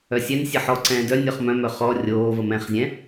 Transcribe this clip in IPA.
œ sʲ ɛ n sʲ ɛ ħ ɔ ǀ ɛ̃ː d œ nʲ ɔ χ m œ̃ m œ χ ɔ rʲ oː v ə m ɛ̃ χ zʲ ɛ̃

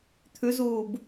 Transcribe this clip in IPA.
t̪ʰ ʉ z uː b

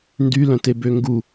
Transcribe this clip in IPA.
n d y l œ̃ t e b ø ŋ ɡ u

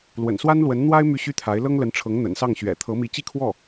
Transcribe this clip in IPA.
l w ə̰˨˩ n s w a˥ n l w ə˧˥ n n̪ w a˥ ɪ̯ m y˥˩ ɕ y˥ t̪ʰ a˧˥ ɪ̯ l ɤ˥ ŋ l ə˧˥ n ʈ͡ʂʰ ɤ˧˥ ŋ n̪ ə̰˨˩ n s ɑ˥˩ ŋ ɕ ɥ ɛ̰˨˩ t̪ʰ ɤ˧˥ m i˧˥ t͡ɕ i˥˧ kʰ w ɔ˥˩

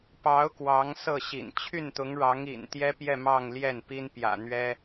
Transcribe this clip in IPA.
p ɑ˧˥ ʊ̯ k w ɑ˧˥ ŋ s ɤ˥˩ ɕ ḭ˨˩ n t͡ɕʰ y˥˩ n t̪ ʊ˧˥ ŋ ɻ ɑ˧˥ ŋ ḭ˨˩ n t̪ j ɛ˥ p j ɛ˥˧ m ɑ˥˧ ŋ l j ɛ˥˩ n p i˥ n p j ä̰˨˩ n̪ ɥ ɛ˥

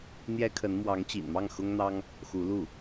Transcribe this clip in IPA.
n̪ j ɛ˥ kʰ ə˧˥ n m w ɑ˧˥ ŋ t͡ɕ ḭ˨˩ n m ɑ˥˩ ŋ x ʊ˥ ŋ n̪ ɑ˥ ŋ | x u˧˥ l u˥˩

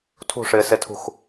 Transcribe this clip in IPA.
tʰ ṳ ʂ ɪː s e tʰ ṳ x

